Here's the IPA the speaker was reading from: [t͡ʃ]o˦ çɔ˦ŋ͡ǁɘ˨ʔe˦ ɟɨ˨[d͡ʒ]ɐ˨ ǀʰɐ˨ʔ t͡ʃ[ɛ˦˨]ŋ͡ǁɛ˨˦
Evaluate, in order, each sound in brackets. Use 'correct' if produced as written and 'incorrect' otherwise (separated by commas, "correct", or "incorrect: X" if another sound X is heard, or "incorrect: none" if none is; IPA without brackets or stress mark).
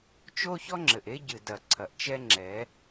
correct, incorrect: d, incorrect: ɛ˦